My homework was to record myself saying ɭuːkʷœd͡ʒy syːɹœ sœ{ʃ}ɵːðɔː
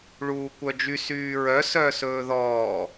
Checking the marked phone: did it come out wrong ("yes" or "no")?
yes